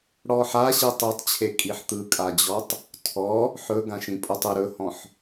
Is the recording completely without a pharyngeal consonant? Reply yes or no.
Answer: no